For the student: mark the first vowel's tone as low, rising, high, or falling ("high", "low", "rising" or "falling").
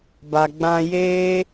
low